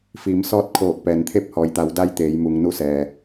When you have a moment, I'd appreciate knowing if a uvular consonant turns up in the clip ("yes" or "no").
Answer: no